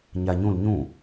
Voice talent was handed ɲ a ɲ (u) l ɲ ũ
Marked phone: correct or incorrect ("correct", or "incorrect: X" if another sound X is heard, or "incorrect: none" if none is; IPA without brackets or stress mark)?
incorrect: ũ